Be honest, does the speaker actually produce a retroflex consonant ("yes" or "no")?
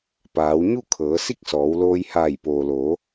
no